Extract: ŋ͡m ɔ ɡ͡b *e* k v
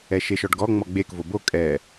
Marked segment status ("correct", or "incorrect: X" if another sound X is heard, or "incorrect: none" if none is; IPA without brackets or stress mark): correct